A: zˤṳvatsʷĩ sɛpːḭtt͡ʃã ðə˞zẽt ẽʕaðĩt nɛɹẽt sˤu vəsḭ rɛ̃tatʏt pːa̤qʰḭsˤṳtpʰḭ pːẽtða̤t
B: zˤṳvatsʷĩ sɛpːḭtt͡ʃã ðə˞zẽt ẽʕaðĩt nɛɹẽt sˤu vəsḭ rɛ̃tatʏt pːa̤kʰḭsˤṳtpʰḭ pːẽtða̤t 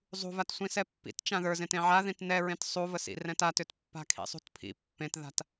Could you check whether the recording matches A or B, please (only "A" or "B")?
B